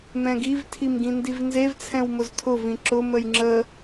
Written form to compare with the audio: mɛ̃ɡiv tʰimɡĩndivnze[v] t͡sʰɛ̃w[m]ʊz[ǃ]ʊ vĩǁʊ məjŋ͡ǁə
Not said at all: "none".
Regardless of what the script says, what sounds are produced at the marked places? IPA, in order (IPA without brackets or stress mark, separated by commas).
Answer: v, m, tʰ